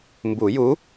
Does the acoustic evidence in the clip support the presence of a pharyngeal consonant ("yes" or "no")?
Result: no